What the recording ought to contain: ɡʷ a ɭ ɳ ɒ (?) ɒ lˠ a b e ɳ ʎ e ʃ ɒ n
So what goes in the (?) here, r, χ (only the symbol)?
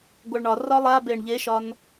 r